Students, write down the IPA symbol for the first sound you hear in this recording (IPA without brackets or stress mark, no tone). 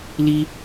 l